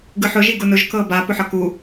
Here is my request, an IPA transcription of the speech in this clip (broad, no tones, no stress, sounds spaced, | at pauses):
ɡ ɯ ħ ʊ ʒ i ɡ ʊ n ʊ ʒ k ɤ b a p ʊ ħ ɤ k u